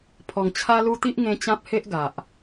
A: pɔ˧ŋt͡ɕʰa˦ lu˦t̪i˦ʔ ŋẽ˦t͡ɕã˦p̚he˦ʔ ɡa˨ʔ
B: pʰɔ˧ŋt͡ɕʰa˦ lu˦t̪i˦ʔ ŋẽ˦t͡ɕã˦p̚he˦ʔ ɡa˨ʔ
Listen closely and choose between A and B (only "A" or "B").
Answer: B